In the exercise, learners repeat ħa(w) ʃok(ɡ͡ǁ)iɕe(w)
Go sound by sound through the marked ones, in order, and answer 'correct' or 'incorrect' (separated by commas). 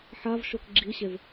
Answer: incorrect, correct, incorrect